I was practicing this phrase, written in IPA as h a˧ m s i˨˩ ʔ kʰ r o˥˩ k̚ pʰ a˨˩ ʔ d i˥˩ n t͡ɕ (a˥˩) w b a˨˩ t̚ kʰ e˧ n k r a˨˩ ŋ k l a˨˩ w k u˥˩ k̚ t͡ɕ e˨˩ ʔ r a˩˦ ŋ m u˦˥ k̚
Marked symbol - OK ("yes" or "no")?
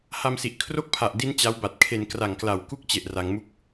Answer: no